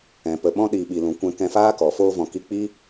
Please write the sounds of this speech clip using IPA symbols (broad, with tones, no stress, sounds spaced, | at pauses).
ɛ̃˨ p ə˨ ɓ ɔ̃˦ ɗ i˨ ɓ i˨ l ũ˨ kʷ ɛ̃˧ k ɛ̃˧ f aː˦ k ɔ˨ f oː˧ v ɔ̃˨ k i˧ k͡p i˦